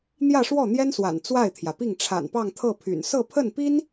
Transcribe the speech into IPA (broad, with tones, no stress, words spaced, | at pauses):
n̪jä˥˧ʂwɔ˥˩n̪jɛ˥nswa̰˨˩n t͡swa˥˩ɪ̯t̪ʰjä˩pi˥˩ŋ ʈ͡ʂʰa̰˨˩npɑ˥˧ŋ t̪ʰɤ˥˩pʰy̰˨˩n sɤ˥˧pʰə˥˩npi˥n